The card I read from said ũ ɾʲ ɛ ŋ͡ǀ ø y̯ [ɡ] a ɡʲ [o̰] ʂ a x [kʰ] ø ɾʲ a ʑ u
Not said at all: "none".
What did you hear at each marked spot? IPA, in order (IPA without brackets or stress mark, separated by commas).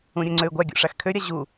ɡʷ, o̰, kʰ